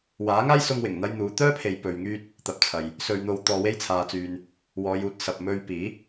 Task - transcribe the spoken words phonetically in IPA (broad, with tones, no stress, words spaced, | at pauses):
waː˨˥ŋaː˥jsʊ˧ŋwɪ˨˩ŋ n̪ɐ˧jn̪uː˨˧ t̪œː˥pʰe˨j pɵ˧ɥŋyː˥t̚ | t̪ɐ˨˥p̚t͡sʰɐ˨j | sɵ˧ɥn̪o˧w t̪ɔː˨we˧jt͡sʰaː˨t͡syː˨n | wɔː˨˧juː˨˥t̚sɐ˨p̚ mɵ˧ɥpiː˨˥